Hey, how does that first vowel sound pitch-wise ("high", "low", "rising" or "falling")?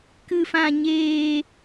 high